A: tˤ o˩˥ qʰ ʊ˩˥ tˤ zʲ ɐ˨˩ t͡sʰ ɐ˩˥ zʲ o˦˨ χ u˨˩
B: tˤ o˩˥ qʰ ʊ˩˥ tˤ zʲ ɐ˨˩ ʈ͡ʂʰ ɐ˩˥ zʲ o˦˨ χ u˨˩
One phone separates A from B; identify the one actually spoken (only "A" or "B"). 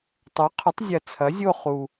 A